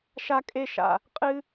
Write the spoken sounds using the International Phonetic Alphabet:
ʃ a˥ kʼ e˥ ʃ a̰˩ | qʼ ɨ˥

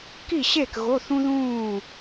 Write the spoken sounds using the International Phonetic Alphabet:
k i˥˨ ɕ e˥˨ k ɣ o˧˥˧ θ ũ˥ ð ũː˥˨

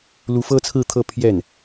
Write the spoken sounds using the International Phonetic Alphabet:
l u˧˥ f ɤ˥ t͡sʰ ɹ̩˥˧ t̪ʰ ɤ˥˧ pʰ j ɛ˥˩ n

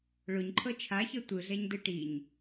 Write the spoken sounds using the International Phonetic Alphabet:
ɭ o ɲ ǃʰ ɤ t͡ʃʰ a ç ɤ tʷ ɯ ɮ ɛ ɲ d ɯ ʈ i ɲ

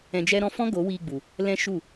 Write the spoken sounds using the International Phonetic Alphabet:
ɛ̃˧ d͡ʒ ɛ˦ ɾ ɔ̃˧ f ɔ̃˦ ɡ o˨˦ w iː˧ ɡ͡b u˨ | l ɛ̃˦ ʃ u˦˨

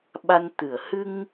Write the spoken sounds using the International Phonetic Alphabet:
ɓ a˧ n t̪ ɨ˨˩˨ ə̯ h ɨ˧ ŋ

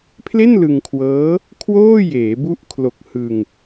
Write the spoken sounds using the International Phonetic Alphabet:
pʰ l e˥˩ n l ɯ˧ ŋ kʰ w ɤː˦˥ | kʰ w oː˥˩ j eː˩˦ b u˦˥ ʔ kʰ l o˨˩ k̚ h ɯ˧ ŋ

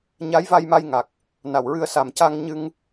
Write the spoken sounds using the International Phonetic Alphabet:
ɲ a˧˥ j v a˧ j m a˧ j ŋ a˨˩ k̚ | n a˨˩ w ɹ ɨ˧ ə̯ s a˨˩ m c a˧ ŋ ɲ ɨ˧ ŋ

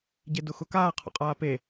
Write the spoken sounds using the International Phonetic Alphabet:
ɟ e d ʊ x ʊ k aː qʰ ɔ̰ qʼ aː p e

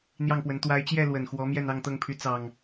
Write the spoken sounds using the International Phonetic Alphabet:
n̪ j ɑ˥˨ ŋ p w ə˨˦ n t̪ w a˨˦ ɪ̯ t͡ɕ j ɛ˥˨ l w ə˨˩ n x w ɔ˨˦ m j ɛ˥˨ n ɑ˥˨ ŋ t̪ ɤ˥˨ ŋ pʰ y˨˦ t͡s ɑ˨˩ ŋ

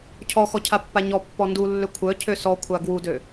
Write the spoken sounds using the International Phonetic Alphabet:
cʰ ɔ x ɔ cʰ a pː a ɲ ɔ pː ɔ n d u lː ø kʷʰ œ cʰ ø s ɔ kʷʰ a ɡ w u d ø

